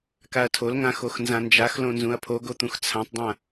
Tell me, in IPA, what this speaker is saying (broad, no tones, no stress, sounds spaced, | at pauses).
k a ɐ̯ tʰ o l ŋ ã x o x n z ã n d͡ʒ a x l õ n z ũ ɐ̯ pʰ o ɡ o t̪ ũ x t͡sʰ ã tˤ dˤ ã